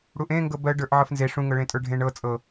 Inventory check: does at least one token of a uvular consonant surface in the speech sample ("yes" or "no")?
no